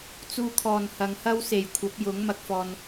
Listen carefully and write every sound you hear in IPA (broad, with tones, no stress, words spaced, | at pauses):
t͡suː˧kʰɔː˨nhɐ˨˧ŋ hɐ˥wse˨jkʷʰɐ˨˥p̚jʊ˨˥ŋ mɐ˧k̚fɔː˧n